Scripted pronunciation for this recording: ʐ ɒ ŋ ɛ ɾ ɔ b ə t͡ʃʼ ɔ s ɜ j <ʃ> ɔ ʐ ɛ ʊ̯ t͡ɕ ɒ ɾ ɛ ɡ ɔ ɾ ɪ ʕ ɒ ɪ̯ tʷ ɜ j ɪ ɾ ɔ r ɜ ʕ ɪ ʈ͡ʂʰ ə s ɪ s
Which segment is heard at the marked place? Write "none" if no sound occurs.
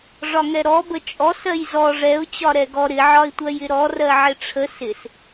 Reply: z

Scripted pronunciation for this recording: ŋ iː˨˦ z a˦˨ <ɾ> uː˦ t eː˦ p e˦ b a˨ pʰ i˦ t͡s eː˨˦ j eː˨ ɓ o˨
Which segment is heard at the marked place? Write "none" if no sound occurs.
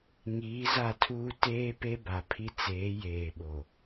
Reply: tʰ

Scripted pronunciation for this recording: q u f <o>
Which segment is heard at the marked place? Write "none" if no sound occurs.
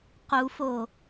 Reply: o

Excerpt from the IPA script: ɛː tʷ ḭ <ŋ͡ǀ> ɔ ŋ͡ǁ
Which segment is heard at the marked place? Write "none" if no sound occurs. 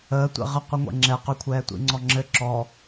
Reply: ŋ͡ǀ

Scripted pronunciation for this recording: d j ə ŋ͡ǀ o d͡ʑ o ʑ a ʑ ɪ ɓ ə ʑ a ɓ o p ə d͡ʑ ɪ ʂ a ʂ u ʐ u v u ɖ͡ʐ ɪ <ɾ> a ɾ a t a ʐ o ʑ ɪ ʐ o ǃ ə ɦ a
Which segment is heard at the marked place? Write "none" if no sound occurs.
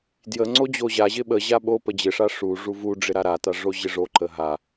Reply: ɾ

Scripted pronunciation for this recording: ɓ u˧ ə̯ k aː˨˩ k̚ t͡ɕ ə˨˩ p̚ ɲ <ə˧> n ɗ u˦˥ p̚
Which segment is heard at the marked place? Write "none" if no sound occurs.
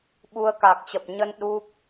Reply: ə˧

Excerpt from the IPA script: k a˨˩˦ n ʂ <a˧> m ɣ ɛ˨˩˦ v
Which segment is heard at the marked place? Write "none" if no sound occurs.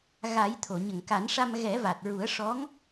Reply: a˧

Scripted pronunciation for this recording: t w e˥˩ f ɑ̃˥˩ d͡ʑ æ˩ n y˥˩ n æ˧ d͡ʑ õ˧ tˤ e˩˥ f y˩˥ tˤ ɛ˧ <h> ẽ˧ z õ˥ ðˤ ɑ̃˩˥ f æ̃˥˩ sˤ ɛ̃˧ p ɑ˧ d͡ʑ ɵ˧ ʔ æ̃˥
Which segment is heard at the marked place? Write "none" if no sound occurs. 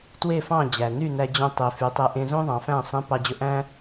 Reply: ʔ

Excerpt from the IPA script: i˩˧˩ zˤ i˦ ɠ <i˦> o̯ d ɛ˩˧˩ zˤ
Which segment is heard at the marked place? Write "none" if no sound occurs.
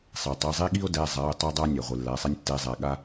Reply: i˦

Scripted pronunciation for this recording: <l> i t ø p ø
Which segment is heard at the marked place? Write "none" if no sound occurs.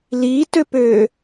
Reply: l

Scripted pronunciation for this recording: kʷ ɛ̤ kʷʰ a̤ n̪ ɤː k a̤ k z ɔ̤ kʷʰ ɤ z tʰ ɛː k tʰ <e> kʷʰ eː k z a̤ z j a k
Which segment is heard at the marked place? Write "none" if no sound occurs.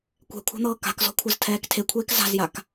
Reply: e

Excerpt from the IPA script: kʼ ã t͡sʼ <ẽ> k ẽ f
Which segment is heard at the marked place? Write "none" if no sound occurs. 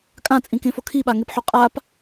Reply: ĩ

